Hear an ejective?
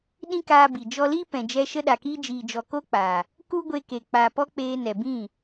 no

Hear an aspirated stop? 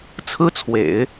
yes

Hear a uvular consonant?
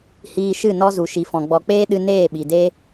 no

